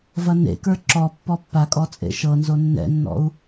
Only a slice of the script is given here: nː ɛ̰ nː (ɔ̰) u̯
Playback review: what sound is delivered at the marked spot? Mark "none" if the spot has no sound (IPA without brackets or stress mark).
ɔ̰